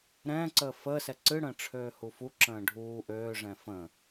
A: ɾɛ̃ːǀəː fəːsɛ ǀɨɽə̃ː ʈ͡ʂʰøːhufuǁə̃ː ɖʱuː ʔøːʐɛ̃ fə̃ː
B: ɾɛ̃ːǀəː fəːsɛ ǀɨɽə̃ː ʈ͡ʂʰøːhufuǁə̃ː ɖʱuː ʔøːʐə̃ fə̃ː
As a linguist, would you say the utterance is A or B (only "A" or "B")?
A